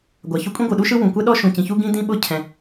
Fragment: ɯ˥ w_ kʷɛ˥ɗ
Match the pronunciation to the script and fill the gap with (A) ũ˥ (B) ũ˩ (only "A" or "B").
B